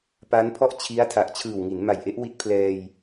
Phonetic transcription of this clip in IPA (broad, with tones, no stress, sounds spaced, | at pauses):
p a˦˥ n pʰ ɔ˥˩ ʔ t͡ɕʰ i˦˥ a̯ tʰ a˨˩ ʔ t͡ɕʰ ɯː˨˩ w ŋ i˩˦ n m a˨˩ j ʔ e˦˥ ʔ w i˦˥ t̚ pʰ l ɛː˧ j